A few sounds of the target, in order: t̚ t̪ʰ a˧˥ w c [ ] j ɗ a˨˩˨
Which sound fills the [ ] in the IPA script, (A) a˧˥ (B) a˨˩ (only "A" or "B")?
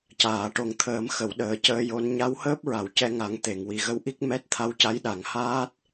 A